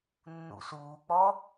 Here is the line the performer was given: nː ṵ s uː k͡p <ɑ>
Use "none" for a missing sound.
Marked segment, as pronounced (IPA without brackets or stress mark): ɔ